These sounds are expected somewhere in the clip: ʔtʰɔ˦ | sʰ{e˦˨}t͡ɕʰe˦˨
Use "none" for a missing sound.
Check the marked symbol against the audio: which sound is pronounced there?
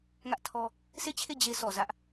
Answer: e˦˨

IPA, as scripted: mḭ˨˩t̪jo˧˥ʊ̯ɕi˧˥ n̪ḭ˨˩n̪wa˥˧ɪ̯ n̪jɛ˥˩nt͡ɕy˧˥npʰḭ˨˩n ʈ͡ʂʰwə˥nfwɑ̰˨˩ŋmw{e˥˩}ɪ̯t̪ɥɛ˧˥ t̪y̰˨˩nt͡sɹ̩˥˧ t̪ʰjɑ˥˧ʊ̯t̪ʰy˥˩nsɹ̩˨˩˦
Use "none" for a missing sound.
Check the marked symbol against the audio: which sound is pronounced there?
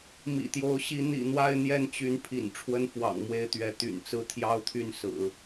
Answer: e˥˩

